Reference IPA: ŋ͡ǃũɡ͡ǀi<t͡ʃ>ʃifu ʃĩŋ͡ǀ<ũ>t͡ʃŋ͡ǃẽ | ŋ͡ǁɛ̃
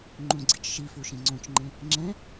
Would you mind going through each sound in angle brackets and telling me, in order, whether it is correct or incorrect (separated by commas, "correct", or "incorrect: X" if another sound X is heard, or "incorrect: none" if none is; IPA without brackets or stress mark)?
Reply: correct, incorrect: õ